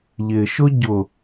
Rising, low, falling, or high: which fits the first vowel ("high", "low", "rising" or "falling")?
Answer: low